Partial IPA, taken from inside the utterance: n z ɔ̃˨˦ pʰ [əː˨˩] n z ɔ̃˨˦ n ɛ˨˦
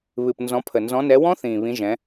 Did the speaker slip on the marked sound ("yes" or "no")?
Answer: yes